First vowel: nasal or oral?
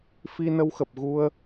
oral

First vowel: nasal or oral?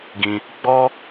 nasal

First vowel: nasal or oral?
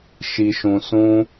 oral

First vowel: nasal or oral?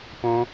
nasal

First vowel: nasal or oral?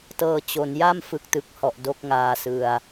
oral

